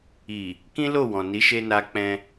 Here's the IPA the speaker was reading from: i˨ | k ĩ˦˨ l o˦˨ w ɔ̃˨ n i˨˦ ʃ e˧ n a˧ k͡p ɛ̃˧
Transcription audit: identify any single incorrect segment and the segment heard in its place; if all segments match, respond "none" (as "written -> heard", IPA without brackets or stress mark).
ĩ˦˨ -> ĩ˦